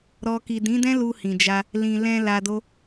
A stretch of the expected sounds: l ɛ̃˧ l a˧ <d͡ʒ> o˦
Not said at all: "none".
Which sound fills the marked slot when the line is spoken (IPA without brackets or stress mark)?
d